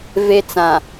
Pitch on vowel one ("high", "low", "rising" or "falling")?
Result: high